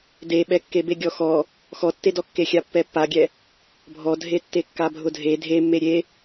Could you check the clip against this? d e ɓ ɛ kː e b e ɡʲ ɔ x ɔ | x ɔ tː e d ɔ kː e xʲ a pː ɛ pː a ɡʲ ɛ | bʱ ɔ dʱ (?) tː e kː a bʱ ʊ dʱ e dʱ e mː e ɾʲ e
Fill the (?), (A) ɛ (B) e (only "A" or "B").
B